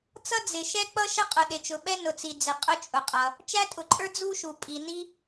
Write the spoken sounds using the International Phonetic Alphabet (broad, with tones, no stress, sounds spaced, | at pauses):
t͡s ʌ˥ d͡z ɪ˩ ʃ ɛ˥ k͡p ʌ˥ ʃ ə˥ qʼ ʊ˩ ɗ ɪ˩ t͡ʃ ʊ˩ ɓ ɛ˥ n ʊ˩ t͡s i˩ d͡z ɪ˩ qʼ ʊ˥ t͡ʃʼ ʊ˩ qʼ ʌ˩ | t͡ʃ æ˥ tʼ ʊ˩ ǃʼ ə˞˥ d͡z u˥ ʃ u˩ pʼ i˩ n i˥